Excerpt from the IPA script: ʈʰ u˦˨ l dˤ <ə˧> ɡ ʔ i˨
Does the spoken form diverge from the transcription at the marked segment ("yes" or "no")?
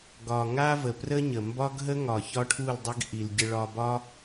yes